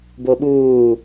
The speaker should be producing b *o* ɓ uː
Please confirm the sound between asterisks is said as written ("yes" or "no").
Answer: yes